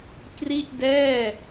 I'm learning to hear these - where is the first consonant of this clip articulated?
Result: velum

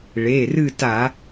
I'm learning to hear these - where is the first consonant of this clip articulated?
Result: retroflex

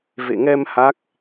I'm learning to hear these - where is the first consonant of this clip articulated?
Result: lips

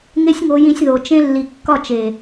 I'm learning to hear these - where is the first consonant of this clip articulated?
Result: velum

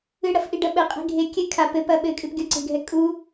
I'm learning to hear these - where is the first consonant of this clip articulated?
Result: retroflex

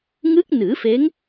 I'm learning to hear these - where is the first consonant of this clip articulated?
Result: velum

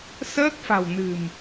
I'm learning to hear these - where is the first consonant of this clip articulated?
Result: tongue tip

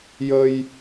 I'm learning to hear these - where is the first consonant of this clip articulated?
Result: palate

